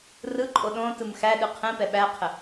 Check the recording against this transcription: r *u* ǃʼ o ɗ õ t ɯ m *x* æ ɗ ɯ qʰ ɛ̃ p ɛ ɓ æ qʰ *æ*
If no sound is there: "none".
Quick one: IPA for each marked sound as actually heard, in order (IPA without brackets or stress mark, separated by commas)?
ɯ, x, ə